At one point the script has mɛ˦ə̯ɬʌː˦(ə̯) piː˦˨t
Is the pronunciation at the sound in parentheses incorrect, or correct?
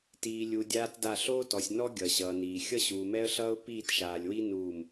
incorrect